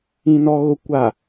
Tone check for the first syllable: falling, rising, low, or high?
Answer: low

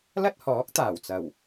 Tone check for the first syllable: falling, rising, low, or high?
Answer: high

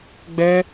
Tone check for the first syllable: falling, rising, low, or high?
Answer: high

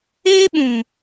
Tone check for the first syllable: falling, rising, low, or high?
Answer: high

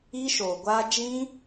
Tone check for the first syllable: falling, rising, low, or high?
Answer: high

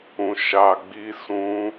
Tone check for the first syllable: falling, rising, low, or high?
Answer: low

